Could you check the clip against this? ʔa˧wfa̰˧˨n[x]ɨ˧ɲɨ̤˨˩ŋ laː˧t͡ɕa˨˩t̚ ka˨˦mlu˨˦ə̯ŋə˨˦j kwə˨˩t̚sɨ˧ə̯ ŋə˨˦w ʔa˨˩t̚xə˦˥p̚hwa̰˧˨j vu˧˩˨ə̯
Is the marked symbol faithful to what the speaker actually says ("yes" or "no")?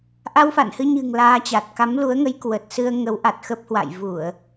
no